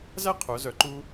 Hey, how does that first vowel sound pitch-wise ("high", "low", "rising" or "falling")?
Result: high